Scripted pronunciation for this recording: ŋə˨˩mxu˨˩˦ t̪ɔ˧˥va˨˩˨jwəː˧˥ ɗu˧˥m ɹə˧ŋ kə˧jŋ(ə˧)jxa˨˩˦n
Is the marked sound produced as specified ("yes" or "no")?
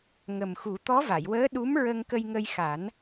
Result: yes